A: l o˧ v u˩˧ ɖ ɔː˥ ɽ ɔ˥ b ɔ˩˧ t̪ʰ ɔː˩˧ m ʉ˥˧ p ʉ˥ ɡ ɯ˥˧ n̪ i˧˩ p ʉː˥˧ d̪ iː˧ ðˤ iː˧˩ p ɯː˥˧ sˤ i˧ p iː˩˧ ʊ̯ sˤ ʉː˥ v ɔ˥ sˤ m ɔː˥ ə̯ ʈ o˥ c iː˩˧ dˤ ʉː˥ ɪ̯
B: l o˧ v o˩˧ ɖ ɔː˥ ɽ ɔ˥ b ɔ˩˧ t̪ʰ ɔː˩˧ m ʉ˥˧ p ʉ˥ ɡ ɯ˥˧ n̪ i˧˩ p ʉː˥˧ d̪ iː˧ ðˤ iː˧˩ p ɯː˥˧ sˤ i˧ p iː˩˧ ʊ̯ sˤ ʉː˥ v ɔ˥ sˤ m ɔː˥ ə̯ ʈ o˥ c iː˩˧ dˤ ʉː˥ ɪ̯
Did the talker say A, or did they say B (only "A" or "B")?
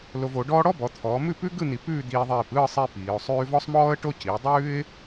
B